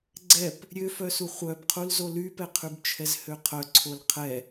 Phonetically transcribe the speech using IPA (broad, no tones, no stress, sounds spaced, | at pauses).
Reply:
ɡ͡ǀ ɛ p | ɾʲ ø f œ s u χʷ œ b qʰ u l z o l y p ɛ qʰ y b t͡ʃʰ ɛ z h ø qʰ œ ǀʰ o l qʰ ɛ